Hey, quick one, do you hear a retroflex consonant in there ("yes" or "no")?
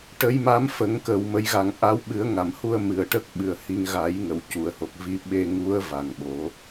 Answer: yes